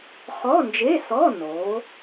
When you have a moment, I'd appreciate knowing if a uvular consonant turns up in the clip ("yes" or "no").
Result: yes